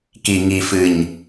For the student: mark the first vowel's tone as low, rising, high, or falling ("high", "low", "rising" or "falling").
low